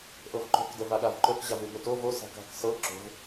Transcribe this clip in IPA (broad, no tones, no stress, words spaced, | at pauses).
ʔɤvǃo̤k dəvaɠavǃɵk ʑavʉbɵto vo sa̤ka̤k sɤ ǁo̤v